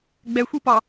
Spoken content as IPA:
ɡ͡b ɛ xʷ i p ɒ

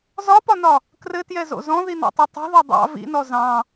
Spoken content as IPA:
z ɒ p ɒ n ɒ | k r ɘ t j ɛ z o̰ z ɔ̃ ð i n ɑ̰ tˤ ɛ tˤ ṳ ð ɒ dˤ ɑ̰ v ḭ n ɔ z ɑ̃

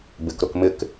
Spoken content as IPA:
b ɪ k ɾ ʊ k m ɪ k

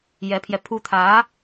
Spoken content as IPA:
j ɛ˧˥ pʰ j ɛ˧ pʰ u˥ t̪ʰ ä˧˥

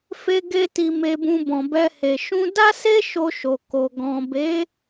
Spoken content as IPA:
f e˧ ɡ e˧ t i˨ m e˨ b ũ˨ b ɔ̃˨ b ɛ˧ h e˨ ʃ ũ˧ d a˦ s e˦ ʃ o˧ ʃ o˨ k o˨ ɡ ɔ̃˨ b e˨˦

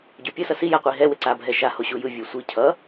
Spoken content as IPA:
ɟ o pʲ ʌ s ʌ s i j a qʷ i ɦ ɛ w e ǀ a bʱ ɛ ʃ a h o ɕ u j ɯ vʲ u sʷ i cʰ ʌ

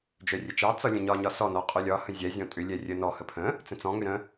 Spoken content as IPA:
d͡ʒ œ rʲ ə t͡ʃ ɑ t͡s ɒ lʲ ə̃ ɲ ɒ ɲ ɒ s ɔ n ɔ qʼ œ lʲ ɒ h ə̃ zʲ ɛ zʲ ɔ̃ tʼ ʏ lʲ ɛ rʲ ə n ɔ h ə pʰ ə̃ | t͡s ə̃ t͡s ɔ̃ ŋ ʏ ɾ ə̃

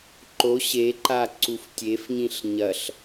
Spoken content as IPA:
ǃ o ɕ e ǃ a ǀ u f tʲ e f ɲ ĩ ɬ ɲ ɐ ɬ

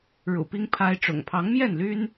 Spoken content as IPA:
ɻ ṵ˨˩ p i˦ ŋ pʰ a˦ ɪ̯ ʈ͡ʂ ʊ̰˨˩ ŋ pʰ ɑ˨˦ ŋ m j ɛ˥˨ n l y˦ n

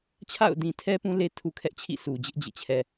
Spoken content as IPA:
t͡ɕʰ a̰˦˨ ʊ̯ d ĩ˨ tʰ ɛ˦ p ũ˦ l e˦ tʰ u˨ kʰ ɛ˦ ʔ t͡ɕʰ ḭ˦˨ s u˨ d͡ʑ ɪ˦ ʔ d͡ʑ ḛ˦˨ t͡ɕʰ ɛ˨

